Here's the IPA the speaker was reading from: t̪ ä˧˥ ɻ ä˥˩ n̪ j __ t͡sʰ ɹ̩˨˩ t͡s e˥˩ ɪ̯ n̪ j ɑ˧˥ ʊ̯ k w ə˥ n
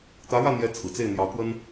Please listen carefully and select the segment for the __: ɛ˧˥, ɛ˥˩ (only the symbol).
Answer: ɛ˧˥